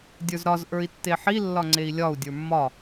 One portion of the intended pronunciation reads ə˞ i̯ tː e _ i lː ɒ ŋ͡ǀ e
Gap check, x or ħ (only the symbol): ħ